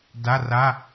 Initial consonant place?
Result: alveolar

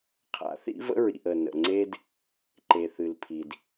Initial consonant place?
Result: uvular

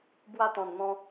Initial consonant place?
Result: labial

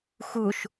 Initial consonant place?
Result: velar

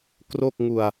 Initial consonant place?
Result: velar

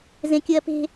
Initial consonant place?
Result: alveolar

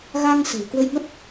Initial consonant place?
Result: velar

